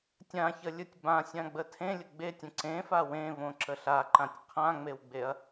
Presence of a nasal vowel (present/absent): present